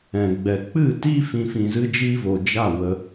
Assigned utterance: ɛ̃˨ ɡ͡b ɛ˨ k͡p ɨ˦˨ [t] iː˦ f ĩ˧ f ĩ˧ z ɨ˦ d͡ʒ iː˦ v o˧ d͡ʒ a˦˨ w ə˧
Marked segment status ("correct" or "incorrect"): correct